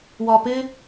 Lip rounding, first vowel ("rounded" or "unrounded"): rounded